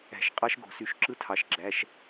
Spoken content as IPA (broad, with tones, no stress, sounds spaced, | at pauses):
æ̤˧˩˧ ʃ qʼ ɑ˦˥ ʃ ɡ o̤˧˩˧ s y˧˩˧ ʃ ǁ ɯ˦˥ tʰ ɑ˩˧˩ ʃ ɡ͡ǁ æ˩˧˩ ʃ